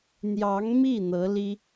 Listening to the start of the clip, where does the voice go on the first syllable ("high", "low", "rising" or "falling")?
rising